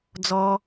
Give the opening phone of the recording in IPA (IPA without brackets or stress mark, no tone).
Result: d͡z